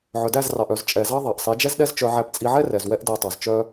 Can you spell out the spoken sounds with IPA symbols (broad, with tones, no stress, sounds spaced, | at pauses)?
ʕ œ˨ d æ˦˨ z r ɑ˨ ʔ œ˨ z t͡ʃʼ ɛ˨ z ɑ˦ ðˤ ɑ˨ ʔ sˤ i˨˦ d͡ʒ ɛ˦ z ɗ ɛ˦ z t͡ʃ œ˧ ʕ æ˧ p t͡sʼ i˧ ʕ ɛ˦ r ɛ˨ z w ɛ˦ ʔ d æ˧ tˤ ɑ˨ z t͡ʃ œ˦